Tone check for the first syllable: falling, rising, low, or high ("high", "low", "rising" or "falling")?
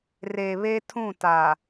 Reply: low